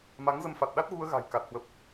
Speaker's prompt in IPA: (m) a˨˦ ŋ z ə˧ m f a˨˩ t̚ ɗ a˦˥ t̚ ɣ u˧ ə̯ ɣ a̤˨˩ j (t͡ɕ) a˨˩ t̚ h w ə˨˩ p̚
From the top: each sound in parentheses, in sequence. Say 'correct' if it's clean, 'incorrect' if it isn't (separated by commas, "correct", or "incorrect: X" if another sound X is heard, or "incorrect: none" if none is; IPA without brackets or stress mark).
correct, incorrect: k